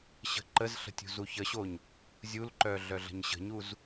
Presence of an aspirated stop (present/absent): absent